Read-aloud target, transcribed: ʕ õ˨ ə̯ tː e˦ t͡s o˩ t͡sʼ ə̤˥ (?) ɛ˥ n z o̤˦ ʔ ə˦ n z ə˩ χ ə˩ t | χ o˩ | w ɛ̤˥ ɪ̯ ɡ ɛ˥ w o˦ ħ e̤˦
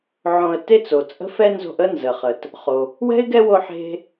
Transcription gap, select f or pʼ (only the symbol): f